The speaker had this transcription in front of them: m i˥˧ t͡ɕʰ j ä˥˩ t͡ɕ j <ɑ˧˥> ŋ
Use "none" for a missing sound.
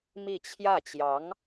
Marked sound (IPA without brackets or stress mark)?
ɑ˧˥